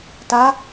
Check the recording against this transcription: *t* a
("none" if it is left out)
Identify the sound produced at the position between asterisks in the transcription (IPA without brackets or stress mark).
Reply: t